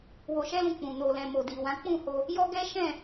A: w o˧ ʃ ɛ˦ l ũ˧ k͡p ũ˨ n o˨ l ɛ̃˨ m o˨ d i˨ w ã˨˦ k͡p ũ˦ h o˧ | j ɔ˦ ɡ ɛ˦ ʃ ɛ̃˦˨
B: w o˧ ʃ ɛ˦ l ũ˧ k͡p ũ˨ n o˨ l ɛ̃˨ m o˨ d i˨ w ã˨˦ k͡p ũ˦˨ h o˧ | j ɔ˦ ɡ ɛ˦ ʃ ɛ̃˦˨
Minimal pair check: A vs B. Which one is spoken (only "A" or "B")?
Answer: B